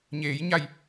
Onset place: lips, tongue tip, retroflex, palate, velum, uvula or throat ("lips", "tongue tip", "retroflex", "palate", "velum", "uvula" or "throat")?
palate